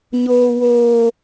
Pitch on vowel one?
low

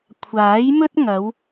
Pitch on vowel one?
rising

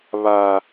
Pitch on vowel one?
high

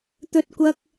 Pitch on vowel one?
high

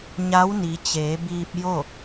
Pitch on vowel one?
rising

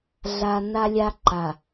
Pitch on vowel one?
low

